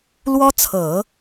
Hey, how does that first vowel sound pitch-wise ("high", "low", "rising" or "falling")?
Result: high